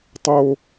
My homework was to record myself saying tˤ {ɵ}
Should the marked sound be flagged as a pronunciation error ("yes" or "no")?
yes